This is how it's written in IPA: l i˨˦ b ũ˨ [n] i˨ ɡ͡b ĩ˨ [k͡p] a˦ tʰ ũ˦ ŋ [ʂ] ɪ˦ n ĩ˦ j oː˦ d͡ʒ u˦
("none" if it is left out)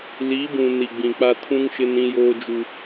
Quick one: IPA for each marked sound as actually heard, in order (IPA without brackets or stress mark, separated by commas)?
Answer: n, k͡p, ʃ